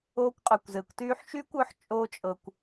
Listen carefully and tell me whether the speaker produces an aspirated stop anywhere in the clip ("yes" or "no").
no